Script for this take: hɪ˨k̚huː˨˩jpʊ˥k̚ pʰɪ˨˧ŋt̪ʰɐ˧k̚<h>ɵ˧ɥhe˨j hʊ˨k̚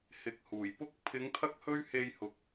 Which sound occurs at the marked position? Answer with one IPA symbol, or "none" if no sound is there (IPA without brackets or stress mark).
h